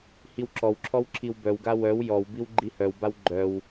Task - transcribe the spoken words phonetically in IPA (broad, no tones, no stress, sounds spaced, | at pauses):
h i w ǁ ɔ w ǁʰ ɔ w ǁʰ i w b œ w ɡ a w œ w j ɔ w b i w ɡ͡ǃ i h œ w b a w ɡ͡ǃ œ w